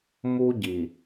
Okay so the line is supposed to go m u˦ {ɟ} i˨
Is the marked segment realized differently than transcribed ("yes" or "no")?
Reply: no